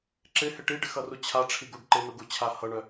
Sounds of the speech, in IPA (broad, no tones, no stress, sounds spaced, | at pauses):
ǁ ɪ h ɪ ʈ i ɖ ɪ x ʌ r u t͡ɕʰ a ʈ͡ʂʰ i ɡ u ɖ ǃ ɪ n u ɡ u t͡ɕʰ a h ʌ ɳ œ